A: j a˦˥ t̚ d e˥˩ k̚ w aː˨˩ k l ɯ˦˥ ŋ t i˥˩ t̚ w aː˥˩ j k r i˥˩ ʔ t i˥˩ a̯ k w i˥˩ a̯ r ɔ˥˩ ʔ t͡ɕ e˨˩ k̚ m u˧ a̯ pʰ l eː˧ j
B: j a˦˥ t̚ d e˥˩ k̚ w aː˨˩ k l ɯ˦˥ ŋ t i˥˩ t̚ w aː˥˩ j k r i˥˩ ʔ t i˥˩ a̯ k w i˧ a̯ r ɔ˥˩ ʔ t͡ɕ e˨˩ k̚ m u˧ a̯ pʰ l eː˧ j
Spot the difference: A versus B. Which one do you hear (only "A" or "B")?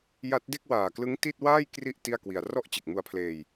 B